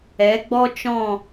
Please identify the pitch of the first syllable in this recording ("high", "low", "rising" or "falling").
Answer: rising